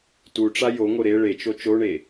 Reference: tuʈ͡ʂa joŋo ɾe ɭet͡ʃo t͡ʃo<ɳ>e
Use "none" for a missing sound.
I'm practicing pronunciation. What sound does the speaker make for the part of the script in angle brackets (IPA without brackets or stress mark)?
ɳ